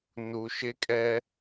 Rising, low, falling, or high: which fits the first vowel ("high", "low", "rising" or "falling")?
low